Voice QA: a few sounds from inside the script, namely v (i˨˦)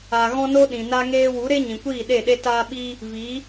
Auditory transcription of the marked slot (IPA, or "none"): i˨˦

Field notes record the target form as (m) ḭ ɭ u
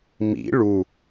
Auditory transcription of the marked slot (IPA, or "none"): m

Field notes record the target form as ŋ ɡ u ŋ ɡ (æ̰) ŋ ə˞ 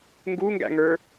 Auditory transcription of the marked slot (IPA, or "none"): æ̰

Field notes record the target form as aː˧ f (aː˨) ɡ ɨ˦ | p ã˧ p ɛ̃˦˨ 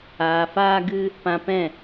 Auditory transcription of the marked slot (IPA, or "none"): aː˦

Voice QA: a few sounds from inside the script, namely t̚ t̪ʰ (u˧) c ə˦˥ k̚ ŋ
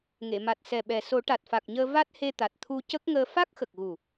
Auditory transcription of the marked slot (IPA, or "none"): u˧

